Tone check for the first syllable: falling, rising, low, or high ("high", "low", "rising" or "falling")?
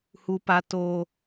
low